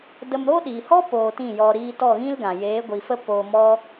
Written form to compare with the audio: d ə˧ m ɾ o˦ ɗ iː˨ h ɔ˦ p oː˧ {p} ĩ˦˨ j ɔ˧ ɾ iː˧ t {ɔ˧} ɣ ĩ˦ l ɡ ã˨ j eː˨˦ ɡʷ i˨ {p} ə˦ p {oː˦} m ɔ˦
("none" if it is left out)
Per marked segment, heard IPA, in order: t, ɔ˦˨, f, oː˧

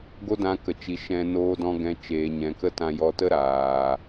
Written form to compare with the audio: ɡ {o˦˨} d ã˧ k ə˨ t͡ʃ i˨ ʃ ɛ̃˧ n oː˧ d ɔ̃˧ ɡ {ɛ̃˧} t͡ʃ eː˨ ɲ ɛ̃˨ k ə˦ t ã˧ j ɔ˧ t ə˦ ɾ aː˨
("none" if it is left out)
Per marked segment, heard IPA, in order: o˦, ɛ̃˧

